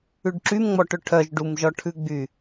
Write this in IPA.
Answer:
ʉ ɖ ǁ y m ŋ͡m ɔ ʈ ɵ ʈʰ œ ʒ ɖ u m ʒ ɔ ʈʰ ʉ ɡ͡b y

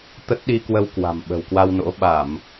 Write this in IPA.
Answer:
t̪ ə˦˥ t̚ ɗ i˧ k w ə˧ w k w a̤˨˩ m ɓ ə̤˨˩ w k w a˧ w n o̰˧˥ ɓ a˧˩˨ m

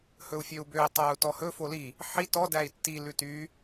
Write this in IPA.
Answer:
h ɵ u̯ fʲ ø u̯ b ø i̯ tˤ æ u̯ t ɔ h ɵ f o l i | ħ i t ɔ d æ i̯ tː i l ʉ t y

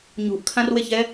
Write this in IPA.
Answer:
ɲ ṳ ʔ kʰ ã r w e ç ɛ

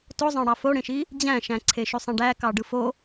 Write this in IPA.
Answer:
t o zˤ ɑ̃ ɽ ɑ f o ɽ ẽ ʃ i | d͡ʑ æ̃ ʃ æ̃ ǀʰ e ʃ y sˤ ẽ ɖ æ k ɑ ɖ ɯ f o

